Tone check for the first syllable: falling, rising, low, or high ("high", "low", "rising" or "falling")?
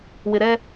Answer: low